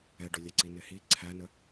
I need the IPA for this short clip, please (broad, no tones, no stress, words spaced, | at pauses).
ɛɖʊlʲæǀi nɪhi ǀʰænə